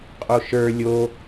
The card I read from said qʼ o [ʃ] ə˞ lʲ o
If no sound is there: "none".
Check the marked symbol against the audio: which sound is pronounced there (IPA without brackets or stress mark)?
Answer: ʃ